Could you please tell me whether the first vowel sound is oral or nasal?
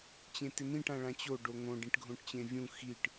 nasal